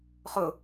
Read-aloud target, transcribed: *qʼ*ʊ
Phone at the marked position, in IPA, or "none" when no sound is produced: χ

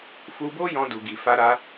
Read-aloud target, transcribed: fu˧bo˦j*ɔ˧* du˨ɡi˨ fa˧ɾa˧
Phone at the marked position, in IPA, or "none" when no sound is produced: ɔ̃˧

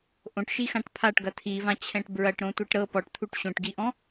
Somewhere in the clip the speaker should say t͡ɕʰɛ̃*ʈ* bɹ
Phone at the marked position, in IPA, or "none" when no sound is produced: ʈ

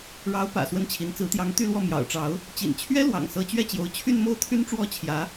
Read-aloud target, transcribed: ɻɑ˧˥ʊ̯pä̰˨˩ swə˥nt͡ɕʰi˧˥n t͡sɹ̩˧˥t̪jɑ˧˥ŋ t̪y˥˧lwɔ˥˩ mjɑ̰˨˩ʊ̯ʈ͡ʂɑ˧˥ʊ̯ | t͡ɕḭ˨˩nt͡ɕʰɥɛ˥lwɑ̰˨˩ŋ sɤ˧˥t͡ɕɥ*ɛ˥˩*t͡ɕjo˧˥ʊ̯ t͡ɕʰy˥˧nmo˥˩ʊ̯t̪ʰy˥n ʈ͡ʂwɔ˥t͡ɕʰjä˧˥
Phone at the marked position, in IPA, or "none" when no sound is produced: ɛ˥˩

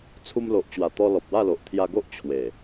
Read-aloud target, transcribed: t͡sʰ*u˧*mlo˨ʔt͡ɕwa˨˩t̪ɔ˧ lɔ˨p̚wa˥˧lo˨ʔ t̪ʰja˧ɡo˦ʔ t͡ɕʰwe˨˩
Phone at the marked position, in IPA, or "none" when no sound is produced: u˧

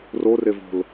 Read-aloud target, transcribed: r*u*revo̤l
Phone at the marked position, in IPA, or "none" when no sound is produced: o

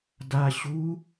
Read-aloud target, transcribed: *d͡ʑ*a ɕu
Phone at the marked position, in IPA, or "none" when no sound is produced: d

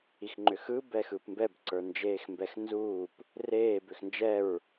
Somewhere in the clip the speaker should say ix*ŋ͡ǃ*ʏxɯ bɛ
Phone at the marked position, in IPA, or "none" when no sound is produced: ŋ͡ǃ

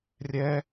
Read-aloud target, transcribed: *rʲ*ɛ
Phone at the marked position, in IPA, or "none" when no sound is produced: rʲ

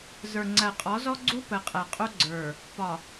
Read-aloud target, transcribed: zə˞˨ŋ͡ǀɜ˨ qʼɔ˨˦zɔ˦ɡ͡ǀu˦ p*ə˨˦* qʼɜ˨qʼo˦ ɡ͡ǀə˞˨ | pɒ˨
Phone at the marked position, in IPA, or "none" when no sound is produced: ə˨˦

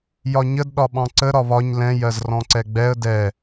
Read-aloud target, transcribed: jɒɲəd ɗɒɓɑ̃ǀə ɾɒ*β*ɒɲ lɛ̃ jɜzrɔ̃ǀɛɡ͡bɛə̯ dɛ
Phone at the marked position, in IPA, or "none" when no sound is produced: β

